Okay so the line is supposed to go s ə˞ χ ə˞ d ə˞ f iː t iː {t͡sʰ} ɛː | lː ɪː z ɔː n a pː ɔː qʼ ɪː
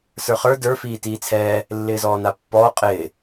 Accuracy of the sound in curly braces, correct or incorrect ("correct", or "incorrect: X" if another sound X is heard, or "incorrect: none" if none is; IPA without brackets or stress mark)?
correct